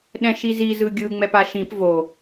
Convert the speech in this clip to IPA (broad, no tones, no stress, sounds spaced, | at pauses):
ɗ ɛ̃ ʃ i z i z ɯ ɡʲ ɯ ŋ͡m ɛ p a ʃ ĩ p v o